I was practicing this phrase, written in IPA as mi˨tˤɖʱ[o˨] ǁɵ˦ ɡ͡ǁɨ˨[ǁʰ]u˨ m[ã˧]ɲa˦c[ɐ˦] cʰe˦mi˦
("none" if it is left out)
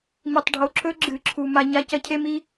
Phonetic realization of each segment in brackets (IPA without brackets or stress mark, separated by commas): o˨, ǁʰ, a˧, ɐ˦